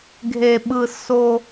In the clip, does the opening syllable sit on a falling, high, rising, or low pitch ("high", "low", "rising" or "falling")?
low